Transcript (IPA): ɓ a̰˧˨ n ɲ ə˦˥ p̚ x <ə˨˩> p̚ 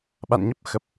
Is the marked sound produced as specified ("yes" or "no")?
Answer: yes